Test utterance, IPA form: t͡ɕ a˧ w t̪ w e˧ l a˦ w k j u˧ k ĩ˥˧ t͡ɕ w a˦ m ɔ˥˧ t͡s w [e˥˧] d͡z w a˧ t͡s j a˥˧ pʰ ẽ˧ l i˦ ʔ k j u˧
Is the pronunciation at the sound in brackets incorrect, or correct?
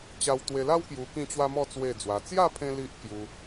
correct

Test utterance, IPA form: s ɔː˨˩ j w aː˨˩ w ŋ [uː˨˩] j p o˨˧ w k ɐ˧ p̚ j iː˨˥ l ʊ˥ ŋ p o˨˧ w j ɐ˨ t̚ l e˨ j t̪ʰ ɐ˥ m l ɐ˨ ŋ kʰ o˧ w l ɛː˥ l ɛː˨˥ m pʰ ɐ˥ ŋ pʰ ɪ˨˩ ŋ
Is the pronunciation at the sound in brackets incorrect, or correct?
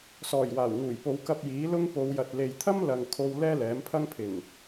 correct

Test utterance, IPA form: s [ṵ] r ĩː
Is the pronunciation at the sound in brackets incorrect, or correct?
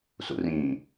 correct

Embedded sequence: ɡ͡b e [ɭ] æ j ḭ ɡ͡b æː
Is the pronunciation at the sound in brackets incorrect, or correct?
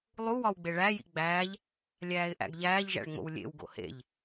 correct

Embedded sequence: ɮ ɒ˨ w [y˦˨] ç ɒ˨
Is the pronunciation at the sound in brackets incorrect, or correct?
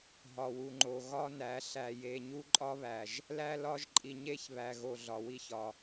incorrect: i˦˨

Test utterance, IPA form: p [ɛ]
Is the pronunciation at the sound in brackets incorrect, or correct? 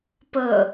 incorrect: ə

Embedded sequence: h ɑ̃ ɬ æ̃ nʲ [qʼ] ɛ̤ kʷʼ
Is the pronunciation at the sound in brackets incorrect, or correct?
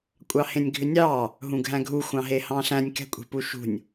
incorrect: k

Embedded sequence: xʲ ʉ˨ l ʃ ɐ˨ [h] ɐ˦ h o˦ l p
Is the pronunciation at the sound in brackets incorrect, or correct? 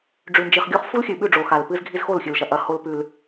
incorrect: ʔ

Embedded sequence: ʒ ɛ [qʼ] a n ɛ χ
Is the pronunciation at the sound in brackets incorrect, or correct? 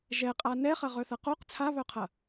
correct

